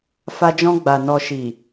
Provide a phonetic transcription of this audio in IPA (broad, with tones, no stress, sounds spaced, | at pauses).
f a˧ d͡ʒ ɔ̃˧ ɡ͡b a˨ n ɔ˨ ʃ i˨